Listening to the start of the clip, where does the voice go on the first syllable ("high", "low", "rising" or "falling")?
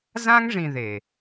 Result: high